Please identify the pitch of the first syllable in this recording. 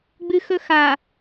high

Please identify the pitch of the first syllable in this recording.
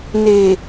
low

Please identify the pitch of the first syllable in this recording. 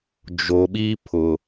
low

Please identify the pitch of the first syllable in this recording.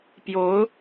rising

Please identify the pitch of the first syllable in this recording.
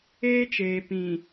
high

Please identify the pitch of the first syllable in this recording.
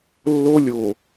high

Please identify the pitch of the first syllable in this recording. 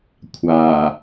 low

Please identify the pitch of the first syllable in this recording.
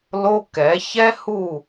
high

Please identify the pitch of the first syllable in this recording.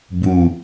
low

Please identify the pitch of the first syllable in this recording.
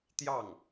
falling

